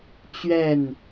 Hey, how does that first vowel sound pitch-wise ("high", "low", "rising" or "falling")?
falling